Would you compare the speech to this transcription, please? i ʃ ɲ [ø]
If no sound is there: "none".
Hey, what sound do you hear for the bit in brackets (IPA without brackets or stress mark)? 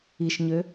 ø